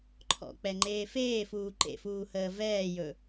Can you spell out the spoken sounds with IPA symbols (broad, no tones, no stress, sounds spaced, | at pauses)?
ǃʰ ɔ̰ k͡p ɛ ŋ͡ǃ eː f eː f uː ǃ ḛ f uː h əː v ɛː j ɵ